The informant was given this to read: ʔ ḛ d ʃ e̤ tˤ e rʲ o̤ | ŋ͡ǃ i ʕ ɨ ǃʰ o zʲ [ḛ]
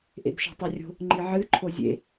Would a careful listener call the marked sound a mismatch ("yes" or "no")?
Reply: no